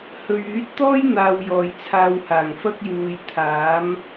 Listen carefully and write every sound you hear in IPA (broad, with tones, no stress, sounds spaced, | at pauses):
h ɵ˨ ɥ yː˨˥ t̚ t̪ ɔː˥ j n̪ aː˧ w j ɔː˨ j t͡sʰ aː˧ w h aː˨˩ ŋ f ɐ˥ k̚ j uː˨˧ j t̪ʰ aː˨˥ m